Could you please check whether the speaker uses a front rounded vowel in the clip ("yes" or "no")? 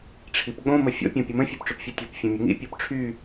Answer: yes